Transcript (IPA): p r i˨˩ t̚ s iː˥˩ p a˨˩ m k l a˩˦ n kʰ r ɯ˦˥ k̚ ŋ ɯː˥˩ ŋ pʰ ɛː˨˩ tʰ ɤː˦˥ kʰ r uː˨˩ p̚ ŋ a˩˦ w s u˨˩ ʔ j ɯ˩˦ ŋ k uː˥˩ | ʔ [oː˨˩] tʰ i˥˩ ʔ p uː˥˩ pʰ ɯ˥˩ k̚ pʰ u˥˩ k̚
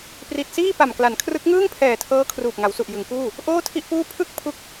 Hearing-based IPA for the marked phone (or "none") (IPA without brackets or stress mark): oː˥˩